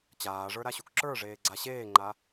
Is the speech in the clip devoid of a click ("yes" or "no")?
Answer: no